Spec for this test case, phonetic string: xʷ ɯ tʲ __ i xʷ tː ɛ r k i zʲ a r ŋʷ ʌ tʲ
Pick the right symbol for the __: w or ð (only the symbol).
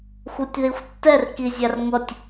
ð